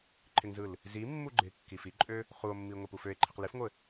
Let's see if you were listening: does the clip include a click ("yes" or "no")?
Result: yes